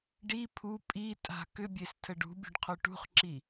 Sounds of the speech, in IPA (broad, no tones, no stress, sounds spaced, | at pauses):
ɖ i pʰ u pʼ i tʼ a̤ k ʏ bʲ e s tʰ ə ɖ ṳ bʲ ṳ ɖ qʰ o ʈ ṳ χ ǁ i